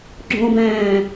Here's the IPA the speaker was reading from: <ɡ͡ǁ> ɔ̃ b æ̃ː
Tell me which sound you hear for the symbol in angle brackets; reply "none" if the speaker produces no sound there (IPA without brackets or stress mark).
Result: ɡ͡ǁ